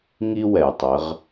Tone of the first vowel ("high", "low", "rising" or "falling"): high